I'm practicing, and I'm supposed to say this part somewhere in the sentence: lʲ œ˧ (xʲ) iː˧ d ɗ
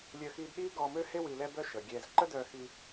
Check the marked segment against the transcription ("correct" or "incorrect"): incorrect